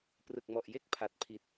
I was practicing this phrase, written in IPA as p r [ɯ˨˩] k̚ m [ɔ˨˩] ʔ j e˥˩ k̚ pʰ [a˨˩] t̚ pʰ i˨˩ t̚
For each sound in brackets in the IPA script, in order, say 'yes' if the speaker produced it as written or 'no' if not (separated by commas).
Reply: yes, yes, yes